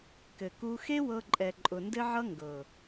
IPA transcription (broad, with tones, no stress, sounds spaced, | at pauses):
k ɘ˨ k u˧ x e˦ w ɤ˧ ǃʼ ɛ˨ ǃʼ ʊ˨ n d ɘ˦ ʕ ʌ˦ ŋ ɡ ɤ˨